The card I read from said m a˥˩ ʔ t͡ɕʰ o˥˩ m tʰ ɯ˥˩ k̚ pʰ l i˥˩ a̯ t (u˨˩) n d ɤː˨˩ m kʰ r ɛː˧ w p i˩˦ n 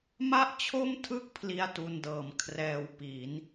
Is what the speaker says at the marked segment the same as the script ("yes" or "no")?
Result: no